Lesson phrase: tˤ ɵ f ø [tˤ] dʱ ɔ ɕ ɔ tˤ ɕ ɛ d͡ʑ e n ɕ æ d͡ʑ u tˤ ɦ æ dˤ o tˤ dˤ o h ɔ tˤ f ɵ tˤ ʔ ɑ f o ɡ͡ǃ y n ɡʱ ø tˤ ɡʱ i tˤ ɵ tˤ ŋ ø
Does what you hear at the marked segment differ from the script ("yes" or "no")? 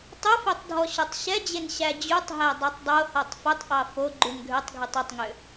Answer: no